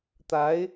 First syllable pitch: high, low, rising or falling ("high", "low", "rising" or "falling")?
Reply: rising